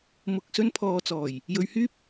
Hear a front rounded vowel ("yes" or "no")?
yes